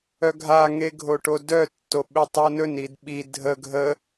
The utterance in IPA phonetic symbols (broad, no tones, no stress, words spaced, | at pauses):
œɡʱaŋeɡʱo ʈodœ tːoɓetˤonɵn idɓi dʱə ɡʱə